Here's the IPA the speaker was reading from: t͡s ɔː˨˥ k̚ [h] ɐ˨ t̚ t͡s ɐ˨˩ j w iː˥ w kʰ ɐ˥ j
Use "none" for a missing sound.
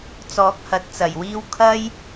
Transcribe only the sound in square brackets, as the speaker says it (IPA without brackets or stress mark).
h